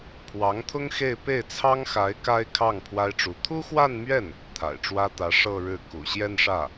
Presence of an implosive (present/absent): absent